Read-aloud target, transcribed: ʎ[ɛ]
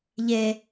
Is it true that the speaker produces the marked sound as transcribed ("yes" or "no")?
no